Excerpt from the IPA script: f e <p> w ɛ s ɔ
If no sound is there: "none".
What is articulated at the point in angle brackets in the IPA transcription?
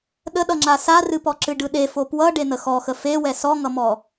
none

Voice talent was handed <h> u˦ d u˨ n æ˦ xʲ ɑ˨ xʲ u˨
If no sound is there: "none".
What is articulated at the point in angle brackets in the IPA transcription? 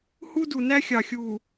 h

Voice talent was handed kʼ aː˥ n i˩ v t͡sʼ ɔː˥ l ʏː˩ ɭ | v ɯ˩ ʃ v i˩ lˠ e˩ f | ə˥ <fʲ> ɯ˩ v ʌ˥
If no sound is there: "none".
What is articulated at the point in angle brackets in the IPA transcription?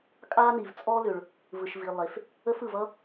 f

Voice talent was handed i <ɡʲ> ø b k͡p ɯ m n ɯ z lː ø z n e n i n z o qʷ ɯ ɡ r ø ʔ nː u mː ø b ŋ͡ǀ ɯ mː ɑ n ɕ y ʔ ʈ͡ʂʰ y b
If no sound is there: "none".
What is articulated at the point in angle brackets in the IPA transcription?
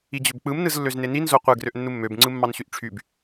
d͡ʑ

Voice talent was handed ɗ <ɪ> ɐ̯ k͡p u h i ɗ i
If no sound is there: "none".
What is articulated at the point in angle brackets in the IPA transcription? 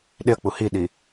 ɪ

